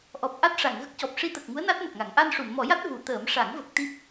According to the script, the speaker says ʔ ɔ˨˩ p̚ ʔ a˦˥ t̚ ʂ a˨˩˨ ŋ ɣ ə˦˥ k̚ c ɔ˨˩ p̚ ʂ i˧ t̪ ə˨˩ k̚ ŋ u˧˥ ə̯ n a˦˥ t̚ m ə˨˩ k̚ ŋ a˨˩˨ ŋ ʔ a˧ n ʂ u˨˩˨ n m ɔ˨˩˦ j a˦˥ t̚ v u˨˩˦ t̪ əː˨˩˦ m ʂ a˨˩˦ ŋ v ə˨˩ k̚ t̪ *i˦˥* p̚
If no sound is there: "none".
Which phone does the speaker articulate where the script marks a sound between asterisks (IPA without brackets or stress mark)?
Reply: i˦˥